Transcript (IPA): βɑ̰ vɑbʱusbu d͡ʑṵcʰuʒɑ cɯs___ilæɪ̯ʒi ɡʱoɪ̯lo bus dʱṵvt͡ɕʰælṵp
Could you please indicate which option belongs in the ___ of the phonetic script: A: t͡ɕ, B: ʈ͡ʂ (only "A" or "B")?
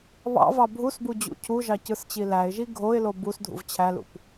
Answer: A